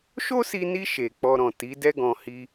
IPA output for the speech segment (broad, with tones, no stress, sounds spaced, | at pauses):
ʃ o˦ s i˧ n i˧ ʃ e˨ k͡p ɔ˧ ɾ ɔ̃˨ t i˨˦ d ɛ˦ ɡ ɔ̃˧ h i˧